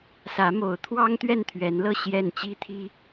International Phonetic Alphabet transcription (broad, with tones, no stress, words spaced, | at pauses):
sä˨˦ mo˨˦ʊ̯t̪ʰwɑ˦ŋ t̪ɥɛ˥˨nt̪ʰɥɛ˨˦nlɤ˥˨ ɕjɛ˥˨n t͡ɕi˦t̪ʰi˦